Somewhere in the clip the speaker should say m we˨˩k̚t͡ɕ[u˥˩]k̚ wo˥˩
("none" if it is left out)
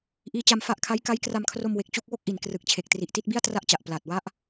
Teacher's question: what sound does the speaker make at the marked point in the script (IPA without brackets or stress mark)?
u˥˩